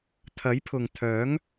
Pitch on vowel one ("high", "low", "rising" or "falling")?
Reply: rising